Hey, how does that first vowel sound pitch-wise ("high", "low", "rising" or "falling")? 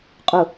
low